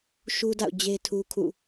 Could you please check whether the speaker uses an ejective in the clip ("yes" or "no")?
no